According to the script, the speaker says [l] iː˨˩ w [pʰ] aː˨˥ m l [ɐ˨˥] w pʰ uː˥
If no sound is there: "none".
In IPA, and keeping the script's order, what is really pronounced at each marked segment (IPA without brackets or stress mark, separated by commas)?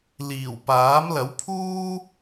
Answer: l, p, ɐ˨˥